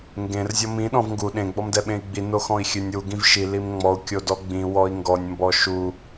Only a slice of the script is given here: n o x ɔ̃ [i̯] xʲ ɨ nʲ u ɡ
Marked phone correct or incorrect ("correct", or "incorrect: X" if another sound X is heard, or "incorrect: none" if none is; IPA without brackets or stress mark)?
correct